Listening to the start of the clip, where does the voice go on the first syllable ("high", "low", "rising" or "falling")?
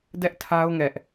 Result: high